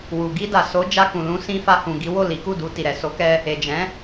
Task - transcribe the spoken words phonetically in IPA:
w u˨ ɡ i˧ d a˨ s o˨˦ d͡ʒ a˧ k ũ˨ l ũ˧ s ĩ˧ f a˧ h ũ˨ ɡ i˨˦ w o˦˨ l i˨˦ k u˦˨ d u˧ t i˨ ɾ ɛ˨ s o˨˦ k ɛ˧ | e˨ d͡ʒ ɛ̃˨˦

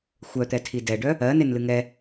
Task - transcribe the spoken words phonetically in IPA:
xʷ œ t̪ ɛ tʰ i d ɛ ɖ œ | ɜ n e n l ɨ ŋ ɛ

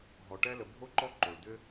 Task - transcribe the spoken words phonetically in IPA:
ɦ ɔ˩ ʈ ɛ˥ l ə˨ bʱ o˦ ǃ ɔ˦ ǃ o˩ ɭ d̪ ʏ˥

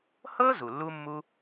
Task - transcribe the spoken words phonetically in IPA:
h ɤ˥ z u˩ lː u˥ mː u˥

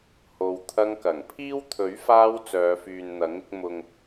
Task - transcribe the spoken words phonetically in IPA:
h o˨ w t̪ʰ ɐ˧ ŋ k ɐ˨˩ ŋ pʰ iː˥ w t̪ʰ ɵ˨˥ ɥ f aː˧ w t͡s œː˨˧ f yː˨ n n̪ ɐ˨˥ ŋ ɪ˧ k̚ m ʊ˨ ŋ

